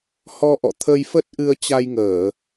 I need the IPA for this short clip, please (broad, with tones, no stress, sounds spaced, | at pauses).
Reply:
h ɔ˧ ʔ ɔ̰˧˨ t̪ʰ ə˧ j f ə˦˥ t̚ ʔ ɨ˧ ə̯ t͡ɕ a˧ j ŋ əː˧˩˨